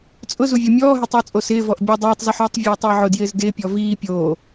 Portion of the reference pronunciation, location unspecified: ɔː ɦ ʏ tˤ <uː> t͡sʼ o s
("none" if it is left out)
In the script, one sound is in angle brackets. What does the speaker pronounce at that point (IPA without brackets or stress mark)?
ʏː